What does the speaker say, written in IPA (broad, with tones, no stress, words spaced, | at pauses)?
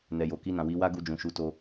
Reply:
nɛ˨jo˨ki˧nã˨ wi˨˦wa˦ ɡu˧d͡ʒũ˨ʃu˨˦to˧